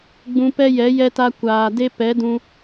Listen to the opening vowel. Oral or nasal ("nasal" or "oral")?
nasal